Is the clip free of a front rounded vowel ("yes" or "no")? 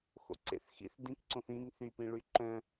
no